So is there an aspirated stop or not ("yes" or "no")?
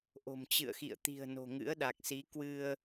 no